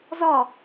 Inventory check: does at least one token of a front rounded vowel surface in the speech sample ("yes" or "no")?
no